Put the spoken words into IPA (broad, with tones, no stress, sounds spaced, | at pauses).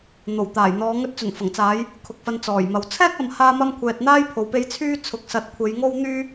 n̪ o˨˩ w t̪ aː˨˩ j n̪ ɔː˨˧ ŋ ɵ˧ t̚ t͡s ɵ˨˩ n f ɐ˨˩ ŋ t͡s aː˨˧ j | kʰ ʊ˨ k̚ f ɐ˧ n t͡s ɔː˨˩ j m ɐ˨ w t͡sʰ ɛː˥ k̚ ɐ˨ m h aː˧ m ɐ˧ m kʷʰ ɛː˨ t̚ n̪ aː˥ j pʰ o˨ w p e˧ j t͡sʰ yː˥ t͡sʰ ʊ˨˥ k̚ s ɐ˨˥ t̚ kʷʰ e˨˧ j ŋ o˥ w n̪ yː˥